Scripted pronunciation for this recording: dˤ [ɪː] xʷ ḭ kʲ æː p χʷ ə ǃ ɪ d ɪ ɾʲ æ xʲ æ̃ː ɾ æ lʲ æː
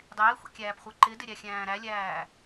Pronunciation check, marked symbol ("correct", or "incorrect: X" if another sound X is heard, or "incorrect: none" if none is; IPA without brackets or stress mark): correct